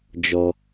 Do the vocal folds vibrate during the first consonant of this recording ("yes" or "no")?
yes